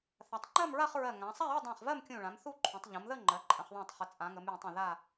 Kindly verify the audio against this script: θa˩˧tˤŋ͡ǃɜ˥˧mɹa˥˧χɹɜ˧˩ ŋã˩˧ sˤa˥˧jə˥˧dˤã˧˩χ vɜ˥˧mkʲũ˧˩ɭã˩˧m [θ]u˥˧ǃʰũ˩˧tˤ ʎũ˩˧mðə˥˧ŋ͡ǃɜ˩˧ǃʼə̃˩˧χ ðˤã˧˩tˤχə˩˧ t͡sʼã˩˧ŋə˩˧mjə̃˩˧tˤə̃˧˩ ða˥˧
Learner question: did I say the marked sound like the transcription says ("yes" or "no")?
yes